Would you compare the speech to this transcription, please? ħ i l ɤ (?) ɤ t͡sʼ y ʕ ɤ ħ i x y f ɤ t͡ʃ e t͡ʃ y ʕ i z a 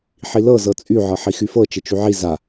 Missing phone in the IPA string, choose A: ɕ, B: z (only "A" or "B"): B